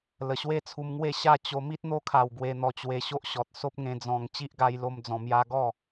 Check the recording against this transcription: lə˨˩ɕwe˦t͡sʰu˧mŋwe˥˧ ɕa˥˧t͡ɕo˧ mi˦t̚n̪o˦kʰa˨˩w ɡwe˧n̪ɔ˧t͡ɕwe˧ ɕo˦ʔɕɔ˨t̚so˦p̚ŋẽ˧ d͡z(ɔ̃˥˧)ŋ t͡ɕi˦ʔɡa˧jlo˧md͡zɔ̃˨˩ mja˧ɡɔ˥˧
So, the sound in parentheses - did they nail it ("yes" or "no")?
no